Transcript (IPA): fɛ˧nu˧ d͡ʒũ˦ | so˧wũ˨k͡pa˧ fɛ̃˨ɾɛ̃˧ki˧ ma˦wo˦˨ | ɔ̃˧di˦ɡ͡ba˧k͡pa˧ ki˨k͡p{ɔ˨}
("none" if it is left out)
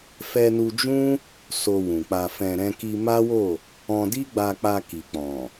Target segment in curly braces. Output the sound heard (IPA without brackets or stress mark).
ɔ̃˨